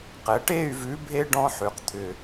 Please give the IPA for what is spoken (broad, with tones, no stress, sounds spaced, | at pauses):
q ɛ˩˧ ʈ e˥˧ y̯ v ʉ˨˥ bʱ e˦˥ ɖ ɔ̃˦˥ ħ ʉ˩˧ q t̪ʰ ʏ˧˩